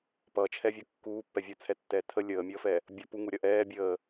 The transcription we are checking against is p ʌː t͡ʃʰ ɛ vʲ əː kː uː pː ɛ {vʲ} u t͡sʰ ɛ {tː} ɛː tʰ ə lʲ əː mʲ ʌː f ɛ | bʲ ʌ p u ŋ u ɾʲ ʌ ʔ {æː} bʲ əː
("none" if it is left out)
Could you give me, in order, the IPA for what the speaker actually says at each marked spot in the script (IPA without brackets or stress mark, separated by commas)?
vʲ, tː, ɛː